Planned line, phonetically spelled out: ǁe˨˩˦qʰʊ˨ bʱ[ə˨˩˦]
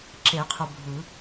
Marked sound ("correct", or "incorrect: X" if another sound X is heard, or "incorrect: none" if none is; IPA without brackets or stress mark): incorrect: ɯ˨˩˦